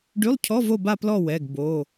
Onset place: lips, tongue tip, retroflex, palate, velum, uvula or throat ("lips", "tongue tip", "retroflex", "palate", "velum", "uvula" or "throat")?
retroflex